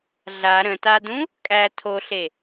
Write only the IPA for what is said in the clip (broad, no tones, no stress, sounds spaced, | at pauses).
ɮ a ɾ ə̃ t a d ũ | kʼ æ tʰ o ɬ e